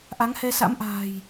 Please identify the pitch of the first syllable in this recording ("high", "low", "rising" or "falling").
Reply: rising